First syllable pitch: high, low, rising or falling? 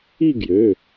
falling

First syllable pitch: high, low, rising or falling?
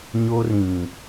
high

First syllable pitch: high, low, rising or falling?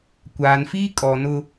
low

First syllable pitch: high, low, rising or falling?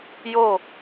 falling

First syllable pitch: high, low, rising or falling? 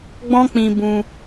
high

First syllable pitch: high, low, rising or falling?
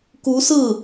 rising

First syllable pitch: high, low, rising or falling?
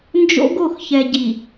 high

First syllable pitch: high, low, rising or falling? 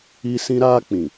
high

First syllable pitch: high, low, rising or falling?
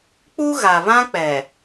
high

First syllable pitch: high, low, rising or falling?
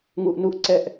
low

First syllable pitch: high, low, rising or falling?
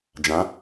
rising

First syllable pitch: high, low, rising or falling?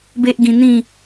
high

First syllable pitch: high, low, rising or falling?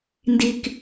high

